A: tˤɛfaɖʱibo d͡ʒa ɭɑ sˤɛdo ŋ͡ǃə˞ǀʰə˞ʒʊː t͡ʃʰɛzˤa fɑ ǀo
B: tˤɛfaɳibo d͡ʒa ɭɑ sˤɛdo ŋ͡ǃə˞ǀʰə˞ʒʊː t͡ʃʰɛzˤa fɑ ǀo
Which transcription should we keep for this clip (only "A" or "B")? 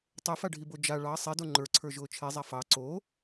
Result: A